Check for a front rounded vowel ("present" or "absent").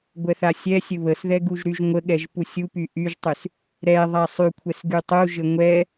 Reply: present